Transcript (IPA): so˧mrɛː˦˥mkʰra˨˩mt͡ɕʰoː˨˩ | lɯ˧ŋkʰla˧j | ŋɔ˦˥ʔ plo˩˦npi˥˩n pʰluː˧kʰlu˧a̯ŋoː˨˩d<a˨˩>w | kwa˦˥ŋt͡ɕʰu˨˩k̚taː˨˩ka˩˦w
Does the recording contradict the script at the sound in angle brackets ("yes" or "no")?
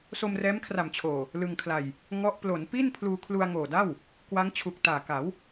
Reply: yes